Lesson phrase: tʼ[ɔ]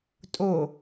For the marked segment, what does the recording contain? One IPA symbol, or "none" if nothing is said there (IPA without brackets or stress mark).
o